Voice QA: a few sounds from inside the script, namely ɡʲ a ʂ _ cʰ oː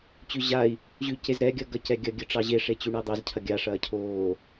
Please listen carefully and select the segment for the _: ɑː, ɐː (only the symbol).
ɐː